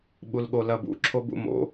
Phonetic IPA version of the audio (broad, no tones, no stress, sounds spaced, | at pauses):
ɓ u l ɠ o l ɐ b ṵ ǁʰ o b ṵ m o̰